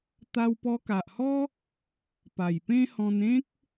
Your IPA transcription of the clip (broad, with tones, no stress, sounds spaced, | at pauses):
t̪ a˧ w p ɔ˧ k a˨ ʔ h ɔ˦ | p a˨˩ j p ẽ˦ h ɔ̃˧ n ẽ˦ k̚